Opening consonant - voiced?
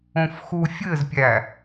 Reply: no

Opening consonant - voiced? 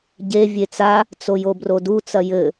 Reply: yes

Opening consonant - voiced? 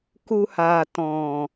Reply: no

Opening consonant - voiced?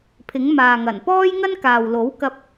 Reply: no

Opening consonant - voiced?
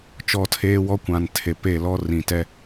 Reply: no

